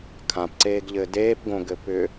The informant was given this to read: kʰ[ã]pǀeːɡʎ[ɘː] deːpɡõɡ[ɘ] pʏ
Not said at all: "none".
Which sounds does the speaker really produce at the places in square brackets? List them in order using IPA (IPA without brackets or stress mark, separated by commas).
ã, ɘː, ɘ